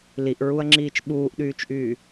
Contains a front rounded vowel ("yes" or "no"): yes